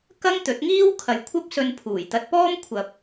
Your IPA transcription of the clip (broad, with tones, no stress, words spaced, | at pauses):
kɐ˥ŋt̪ɵ˨˥t̚ ŋiː˥wkʰɐ˨jkʷʰɐ˥p̚ sɵ˧npʰuː˨˩jt̪ɐ˧t̚ pɔː˥mkʷʰɐ˨p̚